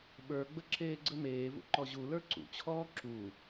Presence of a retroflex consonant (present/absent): absent